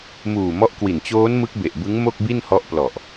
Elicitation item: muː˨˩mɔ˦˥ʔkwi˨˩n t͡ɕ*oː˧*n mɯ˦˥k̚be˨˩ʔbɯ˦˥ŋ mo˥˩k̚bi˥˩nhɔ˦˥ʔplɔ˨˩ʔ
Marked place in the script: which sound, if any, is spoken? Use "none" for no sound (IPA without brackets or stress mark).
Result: oː˦˥